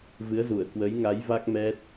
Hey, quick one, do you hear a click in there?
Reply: no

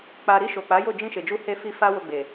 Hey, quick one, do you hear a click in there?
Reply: no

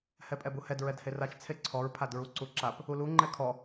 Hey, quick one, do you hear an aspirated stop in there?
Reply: yes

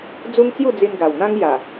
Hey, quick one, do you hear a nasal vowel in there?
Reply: yes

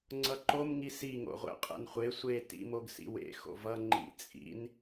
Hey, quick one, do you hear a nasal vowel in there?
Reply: no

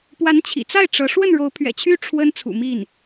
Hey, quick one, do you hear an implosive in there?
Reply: no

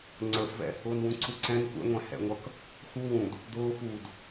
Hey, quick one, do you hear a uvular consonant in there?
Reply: no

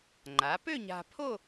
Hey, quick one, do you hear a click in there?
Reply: yes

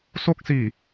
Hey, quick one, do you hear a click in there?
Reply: no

